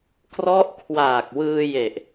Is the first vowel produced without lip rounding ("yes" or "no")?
no